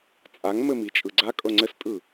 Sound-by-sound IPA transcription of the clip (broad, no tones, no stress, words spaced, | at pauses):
t͡sʼaŋmɘmi t͡ʃʼɯɡ͡ǀa kʼɤŋ͡ǀɘstʼɯ